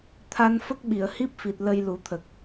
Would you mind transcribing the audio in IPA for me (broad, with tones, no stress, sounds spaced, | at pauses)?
t̪ʰ a˧ n f ə˦˥ k̚ ɓ i˨˩˨ ə̯ h i˦˥ p̚ f i˨˩ t̚ l ə˧ j l u˨˩˦ t̪ʰ ə˨˩ k̚